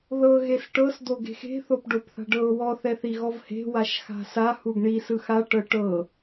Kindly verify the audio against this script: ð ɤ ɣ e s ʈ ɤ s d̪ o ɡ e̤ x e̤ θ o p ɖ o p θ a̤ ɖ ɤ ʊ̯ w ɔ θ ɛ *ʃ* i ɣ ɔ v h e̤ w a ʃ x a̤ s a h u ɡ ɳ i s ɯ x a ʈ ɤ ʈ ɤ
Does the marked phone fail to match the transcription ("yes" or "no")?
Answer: yes